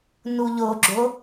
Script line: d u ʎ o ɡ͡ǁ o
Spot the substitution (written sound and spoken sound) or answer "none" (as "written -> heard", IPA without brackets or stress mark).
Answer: d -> n